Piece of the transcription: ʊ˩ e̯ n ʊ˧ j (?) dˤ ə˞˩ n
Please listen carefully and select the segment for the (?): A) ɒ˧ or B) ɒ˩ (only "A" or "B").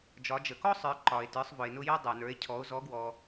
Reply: A